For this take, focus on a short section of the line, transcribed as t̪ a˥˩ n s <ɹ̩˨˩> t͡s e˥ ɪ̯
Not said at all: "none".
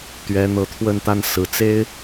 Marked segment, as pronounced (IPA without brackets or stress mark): ɹ̩˨˩